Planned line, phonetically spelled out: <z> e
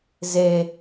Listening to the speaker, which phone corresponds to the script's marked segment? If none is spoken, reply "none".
z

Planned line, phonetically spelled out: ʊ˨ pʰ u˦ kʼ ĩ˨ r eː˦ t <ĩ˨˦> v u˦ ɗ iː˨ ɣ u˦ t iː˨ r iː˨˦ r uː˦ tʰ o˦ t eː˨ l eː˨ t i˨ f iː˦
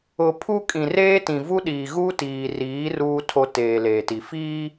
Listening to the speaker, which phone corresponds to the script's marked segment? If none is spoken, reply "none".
ĩ˨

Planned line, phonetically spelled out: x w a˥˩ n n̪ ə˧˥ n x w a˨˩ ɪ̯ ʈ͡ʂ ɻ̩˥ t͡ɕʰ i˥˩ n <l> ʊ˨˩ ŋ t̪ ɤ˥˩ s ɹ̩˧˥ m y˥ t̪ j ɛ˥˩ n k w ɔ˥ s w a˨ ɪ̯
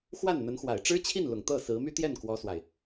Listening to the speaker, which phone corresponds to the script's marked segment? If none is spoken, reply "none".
l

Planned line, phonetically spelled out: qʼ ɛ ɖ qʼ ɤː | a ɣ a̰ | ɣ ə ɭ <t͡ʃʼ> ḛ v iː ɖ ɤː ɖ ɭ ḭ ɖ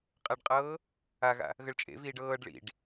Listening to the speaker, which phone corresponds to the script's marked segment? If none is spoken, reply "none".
t͡ʃʼ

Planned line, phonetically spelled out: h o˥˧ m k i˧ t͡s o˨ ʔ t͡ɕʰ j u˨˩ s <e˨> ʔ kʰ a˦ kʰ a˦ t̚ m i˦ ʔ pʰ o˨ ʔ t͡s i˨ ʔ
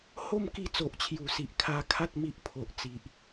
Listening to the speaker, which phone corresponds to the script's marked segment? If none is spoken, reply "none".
i˨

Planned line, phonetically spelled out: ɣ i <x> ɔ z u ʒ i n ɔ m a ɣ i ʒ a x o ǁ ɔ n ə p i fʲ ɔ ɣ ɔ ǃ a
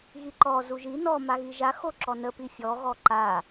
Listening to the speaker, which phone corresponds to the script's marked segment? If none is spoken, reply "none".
ǃ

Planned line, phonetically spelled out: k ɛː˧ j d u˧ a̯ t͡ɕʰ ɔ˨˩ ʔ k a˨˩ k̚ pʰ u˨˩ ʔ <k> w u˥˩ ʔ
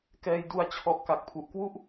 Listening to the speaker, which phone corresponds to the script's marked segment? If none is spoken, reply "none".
k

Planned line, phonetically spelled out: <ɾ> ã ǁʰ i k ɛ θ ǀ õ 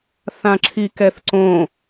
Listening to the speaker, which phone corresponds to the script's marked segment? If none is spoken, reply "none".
θ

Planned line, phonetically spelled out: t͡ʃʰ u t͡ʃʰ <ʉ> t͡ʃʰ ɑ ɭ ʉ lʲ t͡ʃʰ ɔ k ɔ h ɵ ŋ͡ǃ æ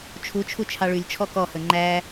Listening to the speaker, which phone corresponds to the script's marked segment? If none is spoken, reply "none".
u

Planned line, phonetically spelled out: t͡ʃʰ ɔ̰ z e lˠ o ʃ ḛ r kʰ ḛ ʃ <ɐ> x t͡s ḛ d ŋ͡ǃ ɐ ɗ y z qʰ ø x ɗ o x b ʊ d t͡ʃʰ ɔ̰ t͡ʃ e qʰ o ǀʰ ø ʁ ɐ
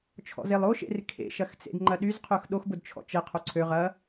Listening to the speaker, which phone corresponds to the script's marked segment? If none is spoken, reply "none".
ɐ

